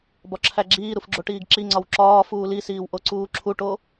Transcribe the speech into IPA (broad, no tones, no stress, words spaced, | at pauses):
bɒǁʰæɡ͡ǁiːɾuf ɡ͡ǁoʈiːɡǁiŋ͡ǀɒw ǁɒː fuːlisiːw ʔoǀuːǁʰuʈo